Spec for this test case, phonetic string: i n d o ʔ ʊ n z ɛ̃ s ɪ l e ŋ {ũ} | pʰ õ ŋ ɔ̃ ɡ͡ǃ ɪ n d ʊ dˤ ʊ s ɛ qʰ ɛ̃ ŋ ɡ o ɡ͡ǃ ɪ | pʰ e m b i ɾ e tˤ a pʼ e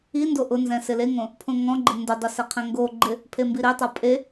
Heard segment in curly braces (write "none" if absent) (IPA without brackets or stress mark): õ